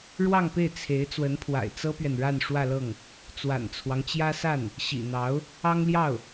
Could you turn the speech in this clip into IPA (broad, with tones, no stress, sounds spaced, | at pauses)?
ɻ w ɑ˥˧ ŋ p e˥˩ ɪ̯ t͡sʰ e˧˥ ɪ̯ t͡s w ə˧˥ n pʰ w a̰˨˩ ɪ̯ t͡s ɤ˥ p ɥ ɛ˨ n ɻ a˥˧ n ʂ w ä˥˧ l ɤ˥˩ ŋ | t͡s w a̰˨˩ n t͡sʰ w ɑ˦ ŋ t͡ɕ j ä˥ s a˥˩ n | ɕ ḭ˨˩ n̪ ɑ˧˥ ʊ̯ | ɑ˥ ŋ l j ɑ˥˩ ʊ̯